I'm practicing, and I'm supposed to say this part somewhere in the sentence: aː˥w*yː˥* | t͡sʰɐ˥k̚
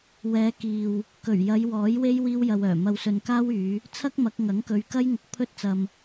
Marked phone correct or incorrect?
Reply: incorrect